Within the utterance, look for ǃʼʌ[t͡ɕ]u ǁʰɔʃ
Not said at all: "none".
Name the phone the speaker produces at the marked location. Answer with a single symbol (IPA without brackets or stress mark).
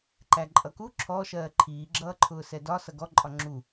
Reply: k